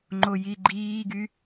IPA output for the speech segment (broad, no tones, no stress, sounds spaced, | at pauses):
ŋ͡ǃ o j i ɡ͡ǃ iː ɡ y